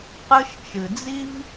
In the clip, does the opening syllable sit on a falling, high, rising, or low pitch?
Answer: high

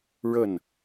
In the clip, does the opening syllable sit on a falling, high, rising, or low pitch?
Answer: falling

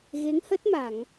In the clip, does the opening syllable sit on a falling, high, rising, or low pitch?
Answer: rising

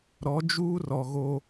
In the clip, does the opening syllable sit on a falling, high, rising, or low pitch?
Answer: rising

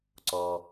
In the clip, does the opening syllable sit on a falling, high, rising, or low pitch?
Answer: high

